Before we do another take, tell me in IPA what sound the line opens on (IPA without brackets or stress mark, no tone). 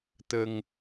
t̪